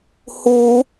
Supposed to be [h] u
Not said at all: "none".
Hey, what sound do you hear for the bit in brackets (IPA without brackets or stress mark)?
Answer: h